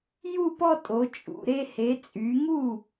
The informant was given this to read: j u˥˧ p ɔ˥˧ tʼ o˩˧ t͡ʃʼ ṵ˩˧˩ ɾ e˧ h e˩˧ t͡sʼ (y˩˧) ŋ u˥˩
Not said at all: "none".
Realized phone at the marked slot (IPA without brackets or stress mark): y˩˧